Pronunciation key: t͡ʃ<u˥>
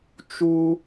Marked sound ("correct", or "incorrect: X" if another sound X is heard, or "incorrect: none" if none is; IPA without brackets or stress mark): correct